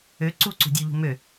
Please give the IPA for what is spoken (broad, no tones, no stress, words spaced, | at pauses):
ø ǀuǀṳ dʲuʎṳ mø